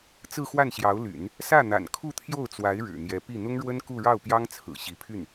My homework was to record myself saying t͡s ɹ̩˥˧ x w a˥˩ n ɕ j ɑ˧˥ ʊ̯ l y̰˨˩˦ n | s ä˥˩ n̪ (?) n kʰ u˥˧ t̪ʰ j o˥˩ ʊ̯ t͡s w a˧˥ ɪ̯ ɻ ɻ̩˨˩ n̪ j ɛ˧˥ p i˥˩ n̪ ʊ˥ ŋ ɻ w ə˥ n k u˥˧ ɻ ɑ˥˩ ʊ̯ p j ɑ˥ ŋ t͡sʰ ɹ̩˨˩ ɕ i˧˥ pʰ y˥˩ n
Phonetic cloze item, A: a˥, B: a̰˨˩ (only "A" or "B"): B